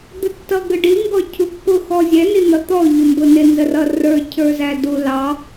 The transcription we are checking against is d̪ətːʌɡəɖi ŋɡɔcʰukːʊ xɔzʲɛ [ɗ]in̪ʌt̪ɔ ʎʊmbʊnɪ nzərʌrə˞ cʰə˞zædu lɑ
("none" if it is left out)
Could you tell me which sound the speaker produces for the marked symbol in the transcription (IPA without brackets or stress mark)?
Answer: n